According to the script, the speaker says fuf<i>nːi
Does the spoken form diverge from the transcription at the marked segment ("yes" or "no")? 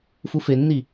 yes